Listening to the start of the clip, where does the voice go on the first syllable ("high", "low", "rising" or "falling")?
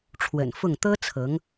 low